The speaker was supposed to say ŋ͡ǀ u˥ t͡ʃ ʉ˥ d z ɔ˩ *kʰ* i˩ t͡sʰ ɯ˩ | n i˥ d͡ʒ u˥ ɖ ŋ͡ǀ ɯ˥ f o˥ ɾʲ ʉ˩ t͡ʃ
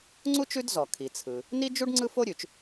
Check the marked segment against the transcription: correct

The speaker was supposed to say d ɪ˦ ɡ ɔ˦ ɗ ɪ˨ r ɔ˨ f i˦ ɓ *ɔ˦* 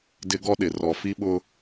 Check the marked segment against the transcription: incorrect: ʊ˦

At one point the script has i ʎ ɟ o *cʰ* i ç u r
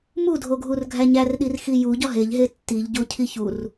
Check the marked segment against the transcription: correct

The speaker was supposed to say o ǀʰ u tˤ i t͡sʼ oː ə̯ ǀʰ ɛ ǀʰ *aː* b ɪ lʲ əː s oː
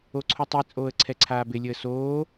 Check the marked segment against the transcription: correct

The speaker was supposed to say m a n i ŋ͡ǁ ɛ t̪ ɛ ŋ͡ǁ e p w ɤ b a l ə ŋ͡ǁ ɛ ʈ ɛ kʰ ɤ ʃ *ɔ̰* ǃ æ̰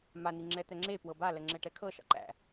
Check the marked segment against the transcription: incorrect: ɑ̰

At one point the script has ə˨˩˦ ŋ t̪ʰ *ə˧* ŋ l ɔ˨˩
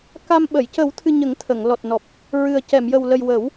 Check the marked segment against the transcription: incorrect: ə˨˩˨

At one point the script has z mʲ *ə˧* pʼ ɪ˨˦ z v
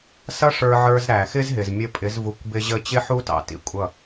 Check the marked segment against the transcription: correct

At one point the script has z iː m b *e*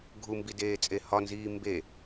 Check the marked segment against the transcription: correct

